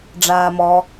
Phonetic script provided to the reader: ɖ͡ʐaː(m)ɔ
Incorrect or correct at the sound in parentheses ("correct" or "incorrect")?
correct